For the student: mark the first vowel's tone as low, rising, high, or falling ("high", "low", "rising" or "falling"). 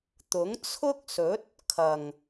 rising